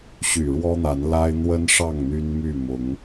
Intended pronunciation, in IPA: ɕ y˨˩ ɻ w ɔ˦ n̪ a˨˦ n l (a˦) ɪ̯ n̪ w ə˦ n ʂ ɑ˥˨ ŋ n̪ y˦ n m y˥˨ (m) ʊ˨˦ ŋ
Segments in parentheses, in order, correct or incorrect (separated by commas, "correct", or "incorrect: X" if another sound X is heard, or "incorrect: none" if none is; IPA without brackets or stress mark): correct, correct